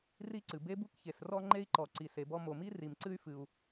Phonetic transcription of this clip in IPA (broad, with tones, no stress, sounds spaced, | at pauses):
r i˥ ǀ ɨ˩ b e˥ b u˥ k ç e˩ s r ɔ˥ ŋ͡ǃ e˥ i̯ ǃ ɔ˩ ǀ i˩ s e˩ b ɔ˥ m o˩ m i˥ r i˩ m ǀ ɨ˥ y̯ f ɨ˩ u̯